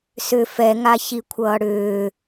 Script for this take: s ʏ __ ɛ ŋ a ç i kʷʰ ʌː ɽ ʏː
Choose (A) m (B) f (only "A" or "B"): B